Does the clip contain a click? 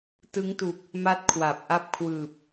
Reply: no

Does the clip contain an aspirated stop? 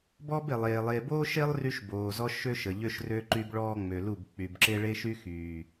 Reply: no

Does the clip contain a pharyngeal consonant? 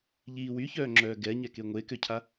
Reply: no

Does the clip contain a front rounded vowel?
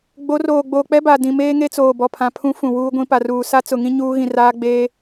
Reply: no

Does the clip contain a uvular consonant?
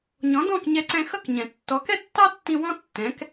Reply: no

